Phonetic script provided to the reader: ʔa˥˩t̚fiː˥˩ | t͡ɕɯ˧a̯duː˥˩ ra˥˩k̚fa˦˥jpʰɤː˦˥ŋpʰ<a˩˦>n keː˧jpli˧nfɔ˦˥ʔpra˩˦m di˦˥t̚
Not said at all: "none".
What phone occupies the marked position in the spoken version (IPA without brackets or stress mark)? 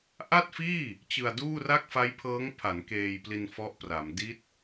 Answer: a˩˦